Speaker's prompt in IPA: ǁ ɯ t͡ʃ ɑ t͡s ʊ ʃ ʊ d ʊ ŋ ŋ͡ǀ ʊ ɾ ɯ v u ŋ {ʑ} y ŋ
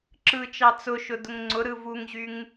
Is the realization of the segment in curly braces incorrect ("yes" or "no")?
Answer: no